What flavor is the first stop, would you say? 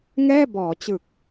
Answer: plain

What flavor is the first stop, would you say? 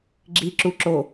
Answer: click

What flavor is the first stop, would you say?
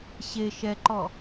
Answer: click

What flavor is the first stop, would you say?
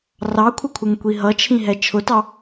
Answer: aspirated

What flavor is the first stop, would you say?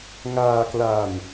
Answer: plain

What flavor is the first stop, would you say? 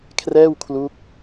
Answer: aspirated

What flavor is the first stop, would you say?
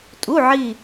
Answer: ejective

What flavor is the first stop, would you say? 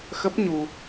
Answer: plain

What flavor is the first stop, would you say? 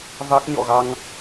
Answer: plain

